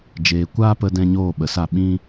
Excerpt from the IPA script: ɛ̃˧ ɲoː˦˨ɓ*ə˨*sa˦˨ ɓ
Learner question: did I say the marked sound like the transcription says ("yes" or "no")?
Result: yes